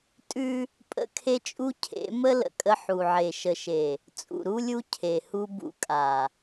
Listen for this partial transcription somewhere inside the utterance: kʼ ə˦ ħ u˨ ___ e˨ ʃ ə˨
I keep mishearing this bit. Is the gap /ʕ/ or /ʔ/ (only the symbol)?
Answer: ʕ